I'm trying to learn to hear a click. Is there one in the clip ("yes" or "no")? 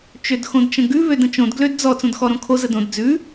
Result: no